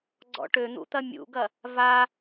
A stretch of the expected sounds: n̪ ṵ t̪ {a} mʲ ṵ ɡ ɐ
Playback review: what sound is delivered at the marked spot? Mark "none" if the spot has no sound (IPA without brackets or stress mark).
ɐ